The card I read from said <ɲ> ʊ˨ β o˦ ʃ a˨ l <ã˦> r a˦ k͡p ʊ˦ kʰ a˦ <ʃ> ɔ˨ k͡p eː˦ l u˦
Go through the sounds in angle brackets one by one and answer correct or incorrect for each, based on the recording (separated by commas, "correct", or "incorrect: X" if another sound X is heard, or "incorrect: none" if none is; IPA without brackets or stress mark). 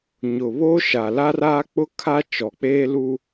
correct, incorrect: a˦, incorrect: t͡ʃ